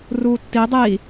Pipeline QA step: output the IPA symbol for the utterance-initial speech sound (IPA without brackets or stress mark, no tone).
r